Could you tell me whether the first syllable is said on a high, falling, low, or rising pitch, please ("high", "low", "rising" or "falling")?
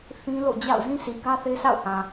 high